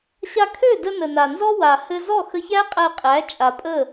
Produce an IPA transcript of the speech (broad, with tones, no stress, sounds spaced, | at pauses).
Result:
ɕ a˧ kʰ ø˦˨ d ə˧ n ə˨ n a˨ n z ɔ˦ w a˨ h ɘ˧ z ɔ˦˨ x ə˧ ç æ˦ qʼ æ˧ qʼ æ˨˦ t͡ʃʼ a˨ pʼ ə˦˨